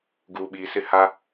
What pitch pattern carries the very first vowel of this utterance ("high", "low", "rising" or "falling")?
low